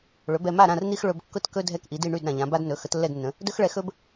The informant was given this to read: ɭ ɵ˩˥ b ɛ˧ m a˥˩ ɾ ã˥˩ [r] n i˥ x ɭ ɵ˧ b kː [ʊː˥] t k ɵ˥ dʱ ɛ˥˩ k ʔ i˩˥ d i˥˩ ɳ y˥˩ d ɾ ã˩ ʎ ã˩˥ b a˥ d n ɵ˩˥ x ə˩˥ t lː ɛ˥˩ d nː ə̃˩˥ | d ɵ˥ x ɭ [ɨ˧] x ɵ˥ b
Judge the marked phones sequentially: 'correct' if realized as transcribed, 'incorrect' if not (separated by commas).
correct, incorrect, incorrect